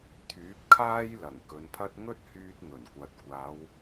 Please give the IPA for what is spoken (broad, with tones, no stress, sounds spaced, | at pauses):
t̪ʰ yː˨˥ p̚ kʰ aː˥ j l ɐ˨˩ ŋ k ɵ˨˧ n pʰ ɐ˥ t̚ ŋ ɵ˥ t̚ h yː˧ t̚ ŋ ɵ˨˩ n kʷ ɐ˨ t̚ kʷ aː˨˧ w